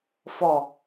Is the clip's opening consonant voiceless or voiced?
voiceless